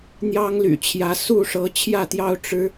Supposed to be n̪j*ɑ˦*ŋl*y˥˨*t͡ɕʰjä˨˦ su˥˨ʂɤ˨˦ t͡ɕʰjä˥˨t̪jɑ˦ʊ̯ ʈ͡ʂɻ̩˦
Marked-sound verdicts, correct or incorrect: correct, incorrect

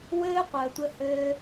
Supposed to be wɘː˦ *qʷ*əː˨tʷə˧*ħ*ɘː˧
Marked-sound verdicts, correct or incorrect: correct, incorrect

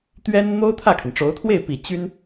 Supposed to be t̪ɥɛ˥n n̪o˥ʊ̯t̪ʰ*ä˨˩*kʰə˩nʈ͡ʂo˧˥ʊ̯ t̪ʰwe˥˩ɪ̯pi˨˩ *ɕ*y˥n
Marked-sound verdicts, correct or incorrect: incorrect, incorrect

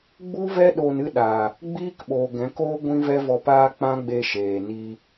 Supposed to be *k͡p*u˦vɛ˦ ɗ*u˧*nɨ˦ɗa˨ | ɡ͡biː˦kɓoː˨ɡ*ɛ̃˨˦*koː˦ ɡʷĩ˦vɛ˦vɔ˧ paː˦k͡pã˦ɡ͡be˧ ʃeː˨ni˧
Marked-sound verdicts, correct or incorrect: incorrect, incorrect, correct

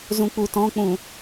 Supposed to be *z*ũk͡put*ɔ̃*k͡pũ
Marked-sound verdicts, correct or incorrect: correct, correct

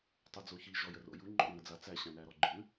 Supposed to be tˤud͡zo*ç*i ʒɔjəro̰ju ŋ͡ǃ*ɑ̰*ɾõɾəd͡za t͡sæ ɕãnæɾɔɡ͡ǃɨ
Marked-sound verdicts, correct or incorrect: correct, incorrect

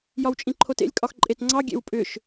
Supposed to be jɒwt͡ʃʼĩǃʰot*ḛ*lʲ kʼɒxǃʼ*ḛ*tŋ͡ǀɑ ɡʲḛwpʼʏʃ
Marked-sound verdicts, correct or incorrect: correct, incorrect

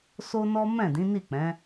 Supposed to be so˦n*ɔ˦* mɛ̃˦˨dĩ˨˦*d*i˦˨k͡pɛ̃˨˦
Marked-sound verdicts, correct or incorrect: correct, incorrect

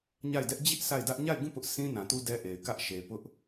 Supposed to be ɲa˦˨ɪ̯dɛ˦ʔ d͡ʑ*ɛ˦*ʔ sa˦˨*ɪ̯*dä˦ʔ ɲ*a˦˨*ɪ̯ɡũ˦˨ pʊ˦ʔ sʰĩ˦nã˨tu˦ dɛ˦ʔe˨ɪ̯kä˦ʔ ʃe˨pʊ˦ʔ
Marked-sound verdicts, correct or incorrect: incorrect, correct, correct

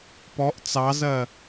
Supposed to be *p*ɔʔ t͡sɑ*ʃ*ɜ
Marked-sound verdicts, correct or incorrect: correct, incorrect

